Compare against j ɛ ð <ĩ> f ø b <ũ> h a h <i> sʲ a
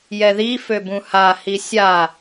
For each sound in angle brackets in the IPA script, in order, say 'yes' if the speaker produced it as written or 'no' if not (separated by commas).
no, yes, yes